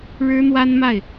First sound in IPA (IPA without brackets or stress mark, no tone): ɻ